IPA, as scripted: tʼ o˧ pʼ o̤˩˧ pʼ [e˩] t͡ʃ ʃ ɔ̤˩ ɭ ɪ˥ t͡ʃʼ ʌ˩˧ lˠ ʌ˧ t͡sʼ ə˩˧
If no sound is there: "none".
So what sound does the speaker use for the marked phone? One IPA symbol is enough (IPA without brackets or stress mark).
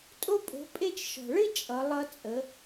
e˧